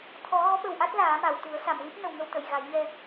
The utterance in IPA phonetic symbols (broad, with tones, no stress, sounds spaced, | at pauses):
t̪ʰ ɔ˨˩˦ ɣ ɔ˧˥ ɓ ə˨˩ w ʔ a˦˥ t̚ l aː˨˩˦ m a˨˩˨ w t̪ u˨˩˦ ə̯ s a˨˩˨ m l i˦˥ p̚ n ə˨˩ w ŋ ə˧ w t̪ ə˨˩˨ j ɣ a˨˩˦ j ɲ ɛ˧